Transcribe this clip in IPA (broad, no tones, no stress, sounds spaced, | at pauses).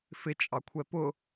f ɪ t͡ʃʼ ɑ kʷʰ ɛ p ʊ